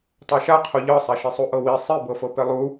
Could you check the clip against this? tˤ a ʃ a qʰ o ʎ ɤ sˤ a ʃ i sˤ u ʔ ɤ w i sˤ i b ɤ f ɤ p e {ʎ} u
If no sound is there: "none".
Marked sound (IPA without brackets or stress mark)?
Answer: lˠ